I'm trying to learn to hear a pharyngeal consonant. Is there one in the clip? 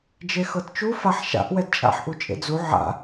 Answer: yes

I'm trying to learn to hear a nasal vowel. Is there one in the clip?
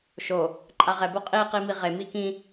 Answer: yes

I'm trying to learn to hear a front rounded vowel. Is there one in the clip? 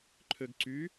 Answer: yes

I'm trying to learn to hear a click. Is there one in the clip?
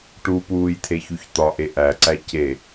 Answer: yes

